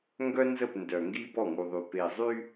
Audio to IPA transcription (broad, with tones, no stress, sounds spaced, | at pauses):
ŋ ɡ œ˦ n z ə˦˨ p n d œ˨ ŋ ɡ i˦ b ɔ˦˨ ŋ u˨ ðˤ y˨ p e˨ zˤ y˦